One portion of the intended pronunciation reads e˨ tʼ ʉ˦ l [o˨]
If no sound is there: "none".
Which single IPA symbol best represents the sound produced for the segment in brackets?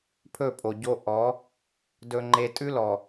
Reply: ɔ˨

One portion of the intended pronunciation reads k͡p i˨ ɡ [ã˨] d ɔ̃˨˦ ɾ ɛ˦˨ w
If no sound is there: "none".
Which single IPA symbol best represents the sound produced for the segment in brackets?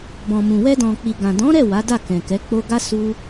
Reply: ã˨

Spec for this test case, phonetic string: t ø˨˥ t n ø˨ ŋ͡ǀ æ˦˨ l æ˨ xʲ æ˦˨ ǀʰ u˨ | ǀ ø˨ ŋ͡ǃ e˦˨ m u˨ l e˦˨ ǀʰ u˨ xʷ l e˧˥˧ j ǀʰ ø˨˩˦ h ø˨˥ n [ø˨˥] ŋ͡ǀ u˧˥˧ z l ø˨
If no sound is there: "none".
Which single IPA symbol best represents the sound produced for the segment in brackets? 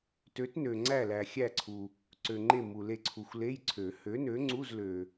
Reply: ø˨˥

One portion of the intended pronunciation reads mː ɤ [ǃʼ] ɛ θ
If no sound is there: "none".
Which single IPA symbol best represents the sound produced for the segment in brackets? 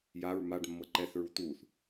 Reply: ǃ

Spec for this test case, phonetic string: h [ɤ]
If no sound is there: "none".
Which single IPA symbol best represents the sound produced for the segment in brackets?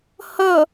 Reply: ɤ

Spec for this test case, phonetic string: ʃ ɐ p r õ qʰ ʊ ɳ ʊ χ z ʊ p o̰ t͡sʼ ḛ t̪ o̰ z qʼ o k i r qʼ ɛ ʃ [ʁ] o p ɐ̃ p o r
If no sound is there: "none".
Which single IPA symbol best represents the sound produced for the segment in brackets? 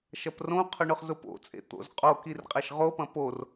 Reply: ʁ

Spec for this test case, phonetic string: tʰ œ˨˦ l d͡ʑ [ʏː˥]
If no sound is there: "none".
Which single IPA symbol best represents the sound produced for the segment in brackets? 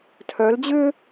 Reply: ʏː˥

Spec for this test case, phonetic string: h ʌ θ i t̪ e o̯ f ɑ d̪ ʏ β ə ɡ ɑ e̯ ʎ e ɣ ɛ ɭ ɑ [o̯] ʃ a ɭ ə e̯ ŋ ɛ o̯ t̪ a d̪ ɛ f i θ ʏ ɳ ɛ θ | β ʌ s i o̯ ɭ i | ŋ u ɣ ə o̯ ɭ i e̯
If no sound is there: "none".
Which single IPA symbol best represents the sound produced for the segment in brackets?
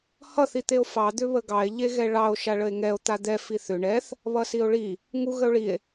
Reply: o̯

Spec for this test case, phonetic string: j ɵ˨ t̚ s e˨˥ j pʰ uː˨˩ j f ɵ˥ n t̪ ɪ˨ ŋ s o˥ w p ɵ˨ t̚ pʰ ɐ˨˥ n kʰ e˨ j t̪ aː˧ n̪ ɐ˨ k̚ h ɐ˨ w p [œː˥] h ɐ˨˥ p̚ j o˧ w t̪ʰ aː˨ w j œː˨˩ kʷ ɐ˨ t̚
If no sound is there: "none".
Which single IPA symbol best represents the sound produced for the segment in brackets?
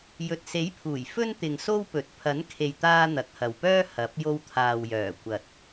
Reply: œː˥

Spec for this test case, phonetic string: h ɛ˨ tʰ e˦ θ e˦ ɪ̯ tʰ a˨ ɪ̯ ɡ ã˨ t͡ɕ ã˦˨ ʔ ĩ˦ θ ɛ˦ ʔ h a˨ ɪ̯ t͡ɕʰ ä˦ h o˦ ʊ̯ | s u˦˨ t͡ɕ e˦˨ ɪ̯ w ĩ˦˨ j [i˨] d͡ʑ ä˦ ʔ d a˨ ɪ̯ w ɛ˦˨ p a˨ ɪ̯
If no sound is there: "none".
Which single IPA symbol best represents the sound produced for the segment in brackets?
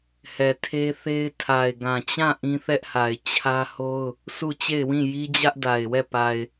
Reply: i˦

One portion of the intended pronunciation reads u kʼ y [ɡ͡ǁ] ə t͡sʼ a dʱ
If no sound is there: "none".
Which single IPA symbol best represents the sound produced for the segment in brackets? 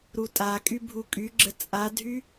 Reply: ɡ͡ǁ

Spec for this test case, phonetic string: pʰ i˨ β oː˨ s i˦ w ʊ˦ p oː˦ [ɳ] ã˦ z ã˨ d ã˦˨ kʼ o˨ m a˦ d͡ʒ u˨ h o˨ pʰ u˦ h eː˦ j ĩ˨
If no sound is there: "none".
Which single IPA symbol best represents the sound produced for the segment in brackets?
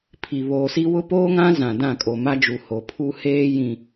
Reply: ŋ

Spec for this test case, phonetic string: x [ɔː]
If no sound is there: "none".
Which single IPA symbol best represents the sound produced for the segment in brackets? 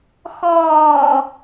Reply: ɔː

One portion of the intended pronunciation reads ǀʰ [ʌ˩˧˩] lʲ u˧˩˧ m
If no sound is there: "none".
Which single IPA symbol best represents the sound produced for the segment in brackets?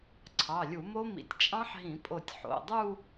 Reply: ɑ˩˧˩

